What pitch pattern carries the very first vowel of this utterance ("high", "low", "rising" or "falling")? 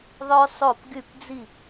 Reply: high